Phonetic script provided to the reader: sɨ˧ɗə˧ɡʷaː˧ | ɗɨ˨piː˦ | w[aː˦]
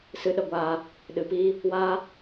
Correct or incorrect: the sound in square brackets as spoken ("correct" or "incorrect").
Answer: correct